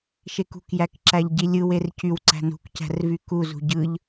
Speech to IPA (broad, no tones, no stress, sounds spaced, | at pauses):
ʃ e k ṳ k j æ k ǁ æ ʎ ɟ i lʲ ɯ w e r c y w ǀ æ̤ n ṳ k c æ̤ r v y k u z ṳ ɟ ɯ ʎ